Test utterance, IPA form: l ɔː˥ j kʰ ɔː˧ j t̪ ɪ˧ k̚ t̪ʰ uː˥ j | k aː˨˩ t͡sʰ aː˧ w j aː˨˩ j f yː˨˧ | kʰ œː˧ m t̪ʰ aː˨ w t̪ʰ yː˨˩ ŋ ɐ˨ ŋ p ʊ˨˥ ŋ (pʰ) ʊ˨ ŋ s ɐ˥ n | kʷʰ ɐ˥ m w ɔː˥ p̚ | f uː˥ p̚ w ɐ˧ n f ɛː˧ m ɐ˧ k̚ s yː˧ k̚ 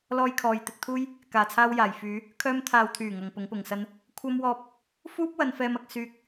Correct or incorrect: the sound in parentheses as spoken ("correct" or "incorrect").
incorrect